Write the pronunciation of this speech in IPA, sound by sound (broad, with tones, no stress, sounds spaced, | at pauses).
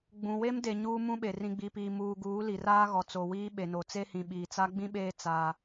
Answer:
ɡ͡b ũ˨ w e˦ m d e˨ ɲ uː˦ m ũ˦ ɓ e˨ r ĩ˨ ɡ͡b i˨ p iː˨ m uː˨ ɡ uː˨˦ l i˨ r aː˦ ɣ ɔ˨ t͡s o˨ w iː˦ ɓ e˨ n o˨ t͡s e˦ h ĩ˨ ɓ iː˨ t͡s a˦ ɡ͡b ĩ˦ ɓ eː˦ t͡s aː˦